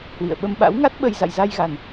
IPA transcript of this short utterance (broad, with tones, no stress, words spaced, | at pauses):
hwḭ˧˨ə̯ɓə˧m ɓa̰˧˥wŋa˦˥t̚ ɓə˧j za̰˧˨jza˧jɣa˨˩n